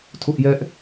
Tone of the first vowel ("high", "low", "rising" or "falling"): high